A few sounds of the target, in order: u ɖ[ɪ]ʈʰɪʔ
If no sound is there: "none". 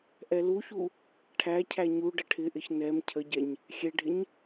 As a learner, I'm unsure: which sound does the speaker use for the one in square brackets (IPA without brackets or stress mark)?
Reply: ə